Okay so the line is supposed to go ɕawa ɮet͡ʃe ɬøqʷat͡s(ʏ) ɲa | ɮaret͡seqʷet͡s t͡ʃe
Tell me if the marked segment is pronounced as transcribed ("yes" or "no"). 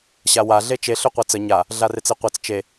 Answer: no